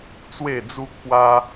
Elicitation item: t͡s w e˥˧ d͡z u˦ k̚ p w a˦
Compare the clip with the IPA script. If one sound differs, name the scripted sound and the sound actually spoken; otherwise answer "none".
none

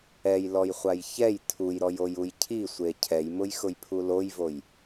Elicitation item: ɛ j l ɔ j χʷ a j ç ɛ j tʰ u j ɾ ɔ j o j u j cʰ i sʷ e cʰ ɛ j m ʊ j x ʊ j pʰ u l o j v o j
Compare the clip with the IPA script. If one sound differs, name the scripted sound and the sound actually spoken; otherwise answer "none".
none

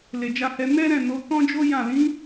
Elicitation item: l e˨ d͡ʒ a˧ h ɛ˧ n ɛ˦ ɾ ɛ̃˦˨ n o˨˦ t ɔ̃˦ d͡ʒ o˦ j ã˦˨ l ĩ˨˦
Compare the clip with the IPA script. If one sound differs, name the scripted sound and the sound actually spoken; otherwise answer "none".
none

